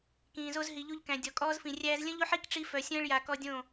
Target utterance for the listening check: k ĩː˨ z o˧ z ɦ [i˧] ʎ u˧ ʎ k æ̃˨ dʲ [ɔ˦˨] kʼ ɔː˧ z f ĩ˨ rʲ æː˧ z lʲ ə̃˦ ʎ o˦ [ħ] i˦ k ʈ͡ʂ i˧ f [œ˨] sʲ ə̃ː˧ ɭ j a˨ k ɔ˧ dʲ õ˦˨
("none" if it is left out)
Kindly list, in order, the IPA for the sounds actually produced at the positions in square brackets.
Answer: i˨, ɔ˨, ħ, œ˨

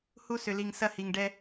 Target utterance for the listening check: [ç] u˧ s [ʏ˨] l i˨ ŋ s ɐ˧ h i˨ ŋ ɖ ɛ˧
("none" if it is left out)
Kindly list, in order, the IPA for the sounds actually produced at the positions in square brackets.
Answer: h, ʏ˨

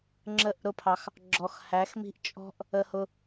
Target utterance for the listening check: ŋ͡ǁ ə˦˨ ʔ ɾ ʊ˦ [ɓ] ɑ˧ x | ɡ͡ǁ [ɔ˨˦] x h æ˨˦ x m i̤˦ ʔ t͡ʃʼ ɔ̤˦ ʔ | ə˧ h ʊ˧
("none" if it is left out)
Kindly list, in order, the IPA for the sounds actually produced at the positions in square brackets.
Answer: pʰ, ɔ˨

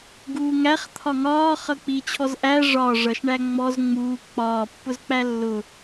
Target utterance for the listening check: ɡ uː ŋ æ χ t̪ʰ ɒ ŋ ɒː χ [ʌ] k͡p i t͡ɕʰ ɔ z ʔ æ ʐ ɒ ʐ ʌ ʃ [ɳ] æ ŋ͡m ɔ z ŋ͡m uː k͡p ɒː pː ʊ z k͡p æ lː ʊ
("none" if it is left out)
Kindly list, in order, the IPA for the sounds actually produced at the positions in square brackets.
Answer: ʌ, ɳ

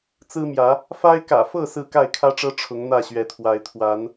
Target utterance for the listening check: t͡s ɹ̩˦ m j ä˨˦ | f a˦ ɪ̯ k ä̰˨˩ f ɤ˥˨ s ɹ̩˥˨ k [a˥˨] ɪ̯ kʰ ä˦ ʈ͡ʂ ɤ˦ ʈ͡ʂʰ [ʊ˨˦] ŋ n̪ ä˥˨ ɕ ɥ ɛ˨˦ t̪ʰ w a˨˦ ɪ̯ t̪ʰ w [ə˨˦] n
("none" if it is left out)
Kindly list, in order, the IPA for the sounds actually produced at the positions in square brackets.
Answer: a˥˨, ʊ˨˦, a˨˦

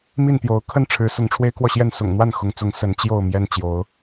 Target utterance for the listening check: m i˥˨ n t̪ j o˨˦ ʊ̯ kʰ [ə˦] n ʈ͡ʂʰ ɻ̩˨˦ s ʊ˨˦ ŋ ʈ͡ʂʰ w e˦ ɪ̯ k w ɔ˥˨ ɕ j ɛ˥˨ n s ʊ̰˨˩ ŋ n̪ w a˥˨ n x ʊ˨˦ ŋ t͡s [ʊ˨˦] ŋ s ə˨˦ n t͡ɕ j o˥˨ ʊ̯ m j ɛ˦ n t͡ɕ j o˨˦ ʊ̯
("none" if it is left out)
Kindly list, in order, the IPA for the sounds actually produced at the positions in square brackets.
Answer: ə˦, ʊ˨˦

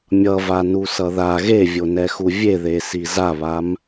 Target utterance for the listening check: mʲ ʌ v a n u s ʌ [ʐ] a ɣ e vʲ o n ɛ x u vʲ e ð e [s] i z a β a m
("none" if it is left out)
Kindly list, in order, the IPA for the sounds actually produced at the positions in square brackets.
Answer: ð, s

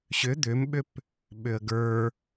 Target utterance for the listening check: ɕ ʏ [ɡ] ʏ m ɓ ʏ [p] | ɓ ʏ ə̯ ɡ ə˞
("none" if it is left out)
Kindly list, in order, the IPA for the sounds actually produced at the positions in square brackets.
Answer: d̪, p

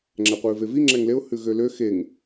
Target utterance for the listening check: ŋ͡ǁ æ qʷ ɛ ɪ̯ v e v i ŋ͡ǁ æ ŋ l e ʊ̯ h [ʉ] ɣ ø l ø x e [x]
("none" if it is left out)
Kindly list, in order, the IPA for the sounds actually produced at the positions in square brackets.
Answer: ʉ, ŋ

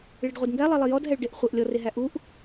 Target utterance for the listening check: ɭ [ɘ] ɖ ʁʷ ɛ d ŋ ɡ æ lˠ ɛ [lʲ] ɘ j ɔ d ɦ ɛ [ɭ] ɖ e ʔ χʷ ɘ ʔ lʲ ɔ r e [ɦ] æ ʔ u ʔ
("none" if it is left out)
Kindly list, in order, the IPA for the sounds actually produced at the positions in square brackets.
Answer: e, lˠ, ɭ, ɦ

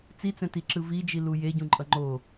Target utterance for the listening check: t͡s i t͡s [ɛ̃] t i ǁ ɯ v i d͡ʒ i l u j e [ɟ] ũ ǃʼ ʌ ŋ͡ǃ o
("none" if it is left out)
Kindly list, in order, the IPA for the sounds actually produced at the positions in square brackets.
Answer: ɛ̃, ɟ

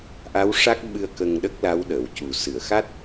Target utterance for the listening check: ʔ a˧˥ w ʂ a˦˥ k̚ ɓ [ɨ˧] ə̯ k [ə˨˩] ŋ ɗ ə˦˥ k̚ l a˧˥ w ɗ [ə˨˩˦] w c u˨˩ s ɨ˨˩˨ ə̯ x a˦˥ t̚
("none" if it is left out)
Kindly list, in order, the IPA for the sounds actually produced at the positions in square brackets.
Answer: ɨ˧, ə˧, ə˨˩˨

